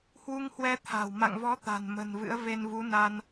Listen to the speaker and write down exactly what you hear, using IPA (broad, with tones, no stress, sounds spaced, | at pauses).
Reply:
h w u˧ ŋ h w ɛ˧ t̪ʰ a̤˨˩ w m a̰˧˨ ŋ v ɔ˨˦ t̪ a̤˨˩ n m ə̤˨˩ n v ɨ̰˧˥ ə̯ v e˧ n v u˨˦ n a˧ n